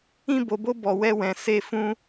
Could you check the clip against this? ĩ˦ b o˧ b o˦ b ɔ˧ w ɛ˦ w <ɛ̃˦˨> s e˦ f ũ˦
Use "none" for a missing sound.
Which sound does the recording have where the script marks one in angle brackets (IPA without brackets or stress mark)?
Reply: ɛ̃˧